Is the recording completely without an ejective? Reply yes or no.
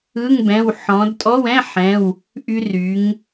no